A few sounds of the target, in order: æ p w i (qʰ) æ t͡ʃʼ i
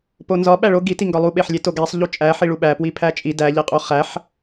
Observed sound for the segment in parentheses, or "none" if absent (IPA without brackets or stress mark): pʰ